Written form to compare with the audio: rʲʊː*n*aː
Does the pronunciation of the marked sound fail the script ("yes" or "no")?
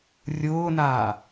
no